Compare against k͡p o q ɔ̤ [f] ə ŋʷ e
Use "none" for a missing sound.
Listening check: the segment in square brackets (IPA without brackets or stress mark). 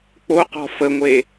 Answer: f